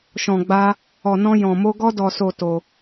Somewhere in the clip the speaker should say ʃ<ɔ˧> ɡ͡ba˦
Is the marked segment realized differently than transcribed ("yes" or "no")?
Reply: yes